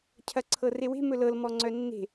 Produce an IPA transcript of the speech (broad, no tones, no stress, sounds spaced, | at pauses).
cʰ ɐ ǀʰ ɤ r e w e̤ m ɵ l ɤ l m ɔ ŋ͡ǀ œ nː e̤